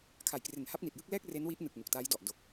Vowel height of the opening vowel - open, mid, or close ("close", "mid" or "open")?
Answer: open